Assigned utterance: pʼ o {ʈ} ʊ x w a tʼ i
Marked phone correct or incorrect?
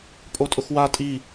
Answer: incorrect